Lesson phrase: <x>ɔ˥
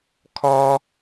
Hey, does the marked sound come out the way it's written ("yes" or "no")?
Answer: no